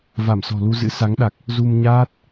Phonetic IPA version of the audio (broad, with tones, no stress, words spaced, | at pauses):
va˧˩msɔ̤˨˩lu˧zɨ̰˧˥ sa˨˦ŋɗa˨˩k̚ | zu˧mɲaː˦˥t̚